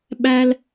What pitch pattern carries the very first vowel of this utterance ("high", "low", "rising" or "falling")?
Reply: high